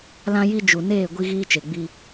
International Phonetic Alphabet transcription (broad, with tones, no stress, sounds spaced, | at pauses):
l ã˦ j i˦ d͡ʒ u˨ n eː˦˨ ɡʷ i˦ ɣ iː˦ t͡ʃ e˨ ɡ͡b i˦